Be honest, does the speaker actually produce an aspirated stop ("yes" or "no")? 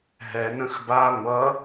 no